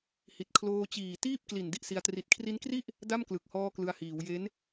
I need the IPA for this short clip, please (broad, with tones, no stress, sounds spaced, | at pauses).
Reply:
h i˨˩ t̚ kʰ l oː˧ t͡ɕ iː˨˩ t iː˥˩ p̚ k l i˨˩ n d i˥˩ ʔ s i˧ a̯ t r i˨˩ t̚ kʰ r i˦˥ n k r i˥˩ ʔ | d a˥˩ m k l ɯ˨˩ k̚ h ɔː˧ k l ɯ˧ a̯ h iː˩˦ w j e˦˥ n